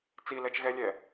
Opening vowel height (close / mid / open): close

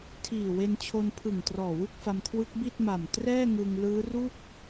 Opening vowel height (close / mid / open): close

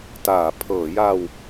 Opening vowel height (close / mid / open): open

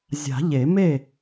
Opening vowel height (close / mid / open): open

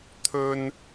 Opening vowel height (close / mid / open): mid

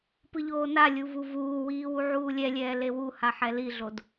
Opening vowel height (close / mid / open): close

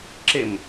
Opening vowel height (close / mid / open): mid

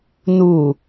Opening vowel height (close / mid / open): close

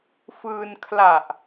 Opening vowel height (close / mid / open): close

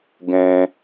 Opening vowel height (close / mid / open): mid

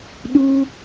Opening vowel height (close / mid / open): close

